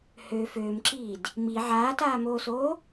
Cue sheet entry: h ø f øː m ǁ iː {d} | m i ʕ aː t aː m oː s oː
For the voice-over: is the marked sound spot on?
yes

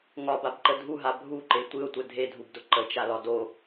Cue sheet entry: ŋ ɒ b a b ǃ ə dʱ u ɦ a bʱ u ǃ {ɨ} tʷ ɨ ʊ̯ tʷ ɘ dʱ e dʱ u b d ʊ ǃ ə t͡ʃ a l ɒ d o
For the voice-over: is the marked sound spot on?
no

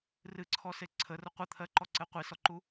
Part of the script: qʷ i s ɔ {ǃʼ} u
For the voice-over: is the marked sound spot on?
no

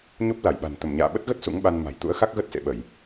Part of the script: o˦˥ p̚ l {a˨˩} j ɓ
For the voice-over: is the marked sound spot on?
no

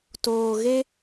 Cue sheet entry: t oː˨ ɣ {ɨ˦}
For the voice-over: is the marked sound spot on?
no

